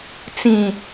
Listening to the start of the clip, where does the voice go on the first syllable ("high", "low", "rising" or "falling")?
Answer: low